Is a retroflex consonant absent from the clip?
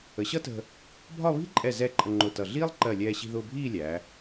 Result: yes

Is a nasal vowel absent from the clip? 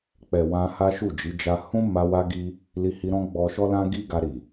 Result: no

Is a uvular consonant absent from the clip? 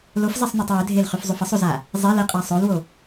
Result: no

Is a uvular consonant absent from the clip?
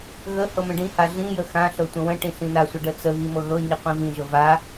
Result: no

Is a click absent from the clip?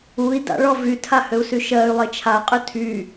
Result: yes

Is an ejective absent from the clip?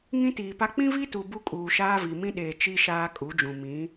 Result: no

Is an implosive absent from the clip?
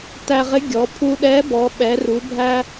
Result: no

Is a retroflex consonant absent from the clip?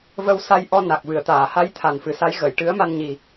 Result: no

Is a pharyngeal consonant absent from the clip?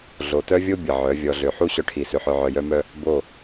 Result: no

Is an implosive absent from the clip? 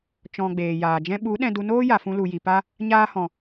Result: no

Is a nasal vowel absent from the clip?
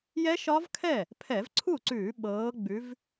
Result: yes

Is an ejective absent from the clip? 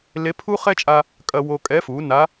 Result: no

